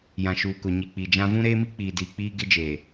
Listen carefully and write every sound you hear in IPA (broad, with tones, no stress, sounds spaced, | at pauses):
j ã˨ ʃ uː˨ k ʊ˨ ɲ i˨ k͡p i˨ d͡ʒ ã˦ v ũ˦ ɾ eː˦ m i˦ k͡p iː˨ d iː˨ k͡p iː˦ ɡ ɪ˦ d͡ʒ eː˨